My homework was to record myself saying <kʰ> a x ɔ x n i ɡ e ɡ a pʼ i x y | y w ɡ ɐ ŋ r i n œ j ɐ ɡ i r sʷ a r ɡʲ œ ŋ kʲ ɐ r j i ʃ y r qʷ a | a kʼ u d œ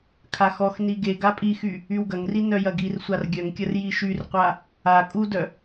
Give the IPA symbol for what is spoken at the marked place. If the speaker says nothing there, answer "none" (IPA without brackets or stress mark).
kʰ